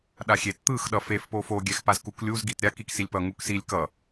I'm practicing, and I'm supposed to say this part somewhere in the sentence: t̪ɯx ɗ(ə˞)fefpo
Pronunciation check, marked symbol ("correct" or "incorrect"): incorrect